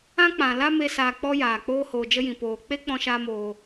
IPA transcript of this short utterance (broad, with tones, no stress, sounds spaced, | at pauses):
ã˦ k͡p ã˨ l a˦ m e˦ s aː˧ k͡p ɔ˦ j aː˨ k͡p oː˦ h oː˨ d͡ʒ ə˧ j ĩ˨ p oː˨ k͡p e˦ k͡p ɔ̃˦ ʃ aː˦ m oː˧